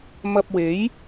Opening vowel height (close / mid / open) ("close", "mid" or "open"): open